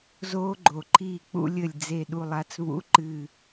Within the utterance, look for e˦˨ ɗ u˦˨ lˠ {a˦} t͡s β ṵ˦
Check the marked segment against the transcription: correct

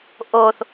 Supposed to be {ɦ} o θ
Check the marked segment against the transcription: incorrect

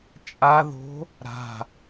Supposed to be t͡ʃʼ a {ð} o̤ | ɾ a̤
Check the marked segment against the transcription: correct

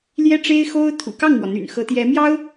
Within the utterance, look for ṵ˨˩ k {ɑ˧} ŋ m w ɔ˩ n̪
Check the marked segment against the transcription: incorrect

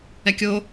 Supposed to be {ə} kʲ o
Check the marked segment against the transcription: incorrect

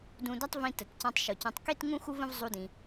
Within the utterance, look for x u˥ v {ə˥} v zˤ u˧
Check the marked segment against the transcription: incorrect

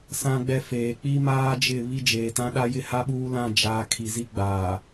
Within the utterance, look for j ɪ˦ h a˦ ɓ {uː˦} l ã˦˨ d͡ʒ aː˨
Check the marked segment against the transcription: correct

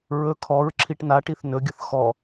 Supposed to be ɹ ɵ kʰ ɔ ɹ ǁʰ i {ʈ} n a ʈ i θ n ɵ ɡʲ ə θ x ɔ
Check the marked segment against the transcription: correct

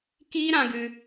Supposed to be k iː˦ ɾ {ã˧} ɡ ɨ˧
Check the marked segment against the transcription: correct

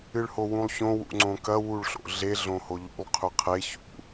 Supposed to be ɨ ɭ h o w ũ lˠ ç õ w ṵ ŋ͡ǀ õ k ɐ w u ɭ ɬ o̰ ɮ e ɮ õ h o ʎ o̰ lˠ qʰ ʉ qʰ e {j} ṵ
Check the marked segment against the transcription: incorrect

